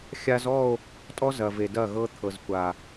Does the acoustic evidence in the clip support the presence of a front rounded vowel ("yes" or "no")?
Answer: no